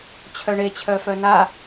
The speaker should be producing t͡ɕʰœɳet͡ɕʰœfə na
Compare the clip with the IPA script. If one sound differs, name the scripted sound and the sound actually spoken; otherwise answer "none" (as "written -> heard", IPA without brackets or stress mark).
ə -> œ